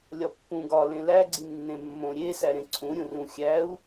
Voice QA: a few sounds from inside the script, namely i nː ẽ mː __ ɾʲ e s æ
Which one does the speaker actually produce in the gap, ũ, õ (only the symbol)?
õ